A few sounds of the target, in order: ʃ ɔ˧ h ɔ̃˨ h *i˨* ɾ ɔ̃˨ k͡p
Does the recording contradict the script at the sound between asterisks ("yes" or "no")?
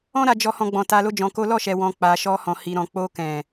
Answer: no